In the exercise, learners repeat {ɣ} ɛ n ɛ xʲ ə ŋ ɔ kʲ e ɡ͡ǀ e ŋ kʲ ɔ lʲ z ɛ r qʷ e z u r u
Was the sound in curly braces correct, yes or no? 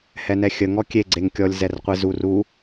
no